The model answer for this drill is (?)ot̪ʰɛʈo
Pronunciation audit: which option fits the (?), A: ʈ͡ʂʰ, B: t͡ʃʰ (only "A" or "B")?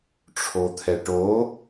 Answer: A